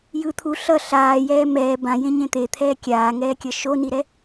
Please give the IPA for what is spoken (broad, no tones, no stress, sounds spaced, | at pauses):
j ɯ t̪ʰ u ɬ ʌ ɬ aː j ɛː m ɛː b ã j ẽ ɲ ẽ t̪ e t̪ʰ ɛː kʲ aː ŋ ɛː kʲ ʌ ʃ o n i ɾ ɛ